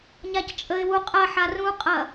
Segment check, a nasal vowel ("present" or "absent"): present